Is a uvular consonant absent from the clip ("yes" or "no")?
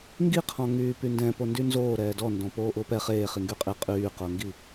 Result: no